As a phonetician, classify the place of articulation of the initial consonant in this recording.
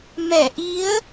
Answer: labial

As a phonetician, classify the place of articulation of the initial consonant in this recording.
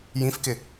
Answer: palatal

